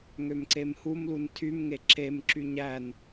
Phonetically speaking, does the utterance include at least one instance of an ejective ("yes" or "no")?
no